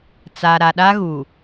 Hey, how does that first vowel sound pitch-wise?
low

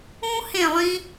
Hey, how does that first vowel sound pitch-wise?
high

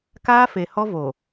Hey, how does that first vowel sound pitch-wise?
high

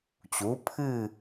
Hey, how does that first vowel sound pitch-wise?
rising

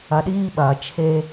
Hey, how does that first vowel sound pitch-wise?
low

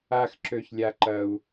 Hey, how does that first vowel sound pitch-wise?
high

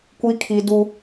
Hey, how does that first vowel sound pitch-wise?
high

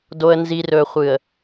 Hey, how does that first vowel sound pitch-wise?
low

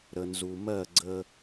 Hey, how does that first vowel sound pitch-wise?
low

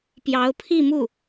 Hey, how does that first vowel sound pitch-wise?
rising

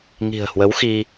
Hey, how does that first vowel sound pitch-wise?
low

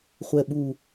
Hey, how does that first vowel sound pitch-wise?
low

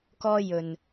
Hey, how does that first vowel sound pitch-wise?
high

